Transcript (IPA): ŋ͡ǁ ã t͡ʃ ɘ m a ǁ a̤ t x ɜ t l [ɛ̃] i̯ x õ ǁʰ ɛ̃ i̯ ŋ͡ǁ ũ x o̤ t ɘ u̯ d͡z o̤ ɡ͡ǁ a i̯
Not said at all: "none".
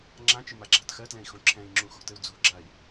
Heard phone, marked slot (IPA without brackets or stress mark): ɛ̃